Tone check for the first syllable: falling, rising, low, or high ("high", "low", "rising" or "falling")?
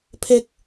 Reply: high